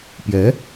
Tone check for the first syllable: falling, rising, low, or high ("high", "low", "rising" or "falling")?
rising